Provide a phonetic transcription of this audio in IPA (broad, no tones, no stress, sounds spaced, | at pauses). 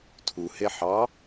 tʰ u h e ħ ɑ